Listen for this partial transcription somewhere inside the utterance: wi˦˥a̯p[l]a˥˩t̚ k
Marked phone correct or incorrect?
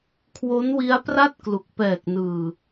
incorrect